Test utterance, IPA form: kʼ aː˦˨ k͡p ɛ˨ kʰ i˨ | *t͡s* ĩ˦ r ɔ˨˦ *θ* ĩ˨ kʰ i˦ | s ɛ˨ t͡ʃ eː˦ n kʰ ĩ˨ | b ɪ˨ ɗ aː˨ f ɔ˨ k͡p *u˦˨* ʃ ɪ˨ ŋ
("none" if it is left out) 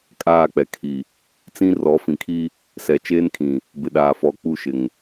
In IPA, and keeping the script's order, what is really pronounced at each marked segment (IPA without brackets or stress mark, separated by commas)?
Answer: t͡s, f, u˦˨